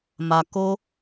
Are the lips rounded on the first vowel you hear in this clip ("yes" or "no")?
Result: no